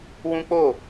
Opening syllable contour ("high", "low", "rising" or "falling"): high